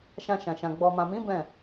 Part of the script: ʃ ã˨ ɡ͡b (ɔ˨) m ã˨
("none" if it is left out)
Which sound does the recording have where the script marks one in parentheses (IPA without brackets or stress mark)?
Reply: ɔ˨